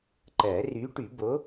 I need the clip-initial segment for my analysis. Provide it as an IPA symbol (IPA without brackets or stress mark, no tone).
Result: ǃ